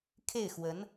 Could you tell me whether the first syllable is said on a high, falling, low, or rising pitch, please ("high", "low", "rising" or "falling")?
falling